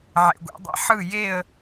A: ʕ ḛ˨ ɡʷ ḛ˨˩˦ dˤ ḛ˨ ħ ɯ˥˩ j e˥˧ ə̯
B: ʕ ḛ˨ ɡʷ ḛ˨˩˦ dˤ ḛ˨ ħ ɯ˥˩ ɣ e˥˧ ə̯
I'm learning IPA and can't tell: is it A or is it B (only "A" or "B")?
A